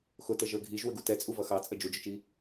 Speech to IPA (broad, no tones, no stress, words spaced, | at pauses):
xʊtə ʒə˞ɡʱiʒ wəɡutɛt͡sʼu vʌxɑt͡sʼə d͡ʒud͡ʒʊt͡ʃi